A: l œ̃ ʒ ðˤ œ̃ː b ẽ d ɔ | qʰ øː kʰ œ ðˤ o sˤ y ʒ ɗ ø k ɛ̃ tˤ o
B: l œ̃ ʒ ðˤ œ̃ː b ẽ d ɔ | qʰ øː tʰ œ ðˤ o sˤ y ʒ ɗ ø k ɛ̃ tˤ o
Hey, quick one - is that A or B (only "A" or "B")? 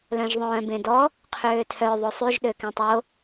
B